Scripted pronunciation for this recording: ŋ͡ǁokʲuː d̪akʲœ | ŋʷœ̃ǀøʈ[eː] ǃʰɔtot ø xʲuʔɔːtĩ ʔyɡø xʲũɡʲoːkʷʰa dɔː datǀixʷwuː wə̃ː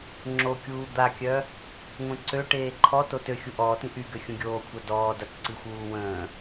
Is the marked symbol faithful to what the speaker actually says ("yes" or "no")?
yes